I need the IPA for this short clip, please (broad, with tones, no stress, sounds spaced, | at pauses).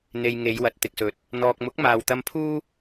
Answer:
n̪ e˧ j ŋ e˨˧ j w ɐ˨ t̚ t̪ ɪ˨ k̚ s ɵ˨˥ t̚ | n̪ ɔː˨ k̚ m ʊ˨˥ k̚ m aː˨ w t̪ ɐ˧ m pʰ uː˥